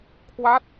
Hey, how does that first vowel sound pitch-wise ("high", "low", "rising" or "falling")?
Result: falling